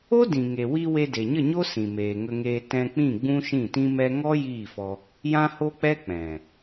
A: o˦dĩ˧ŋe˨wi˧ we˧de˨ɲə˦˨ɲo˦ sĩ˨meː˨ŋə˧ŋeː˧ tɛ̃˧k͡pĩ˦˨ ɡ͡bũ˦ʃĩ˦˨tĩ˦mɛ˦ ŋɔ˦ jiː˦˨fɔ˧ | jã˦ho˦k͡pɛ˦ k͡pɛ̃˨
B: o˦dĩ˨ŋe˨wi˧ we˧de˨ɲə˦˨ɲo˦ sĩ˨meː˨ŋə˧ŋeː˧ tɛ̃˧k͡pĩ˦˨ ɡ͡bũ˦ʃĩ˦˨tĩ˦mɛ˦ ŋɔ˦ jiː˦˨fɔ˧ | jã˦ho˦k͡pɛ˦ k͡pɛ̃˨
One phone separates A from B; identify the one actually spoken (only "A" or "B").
B